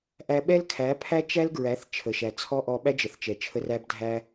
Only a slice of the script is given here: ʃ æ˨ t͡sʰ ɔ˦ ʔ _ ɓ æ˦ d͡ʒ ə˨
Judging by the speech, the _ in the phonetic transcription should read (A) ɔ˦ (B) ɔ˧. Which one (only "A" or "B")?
B